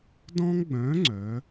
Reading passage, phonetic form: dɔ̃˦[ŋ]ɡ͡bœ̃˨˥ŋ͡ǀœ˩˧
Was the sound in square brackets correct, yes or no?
yes